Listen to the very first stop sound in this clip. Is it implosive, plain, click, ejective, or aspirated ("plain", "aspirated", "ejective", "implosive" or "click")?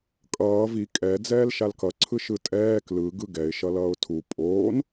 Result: ejective